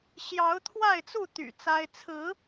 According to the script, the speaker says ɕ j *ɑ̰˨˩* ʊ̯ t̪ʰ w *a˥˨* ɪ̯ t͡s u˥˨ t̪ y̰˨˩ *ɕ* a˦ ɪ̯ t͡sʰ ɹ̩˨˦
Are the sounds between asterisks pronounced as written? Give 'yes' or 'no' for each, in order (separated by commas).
no, yes, no